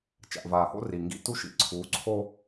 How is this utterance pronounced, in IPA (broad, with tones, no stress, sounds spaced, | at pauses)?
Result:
t͡ʃ a̰˨ ʔ v aː˨ h o̰˦ r i˨ ŋ ɡ ḭ˦ t u˦ ʃ ḭ˨ ǀʰ uː˨˦ ǀʰ o˦